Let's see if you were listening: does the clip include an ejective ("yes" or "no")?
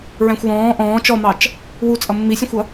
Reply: yes